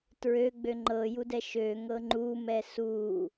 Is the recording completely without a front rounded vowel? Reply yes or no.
no